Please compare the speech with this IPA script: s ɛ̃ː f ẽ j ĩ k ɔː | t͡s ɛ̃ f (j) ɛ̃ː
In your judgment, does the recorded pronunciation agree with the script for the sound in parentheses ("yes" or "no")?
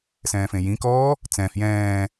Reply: yes